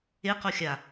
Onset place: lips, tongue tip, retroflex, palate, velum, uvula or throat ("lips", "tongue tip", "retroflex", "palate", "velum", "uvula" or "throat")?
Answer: uvula